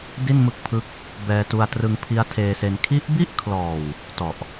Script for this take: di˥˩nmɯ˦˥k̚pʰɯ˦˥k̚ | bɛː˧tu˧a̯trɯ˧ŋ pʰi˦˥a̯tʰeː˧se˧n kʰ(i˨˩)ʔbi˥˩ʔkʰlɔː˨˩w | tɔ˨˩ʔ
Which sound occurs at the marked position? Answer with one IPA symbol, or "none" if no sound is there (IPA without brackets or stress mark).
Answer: i˦˥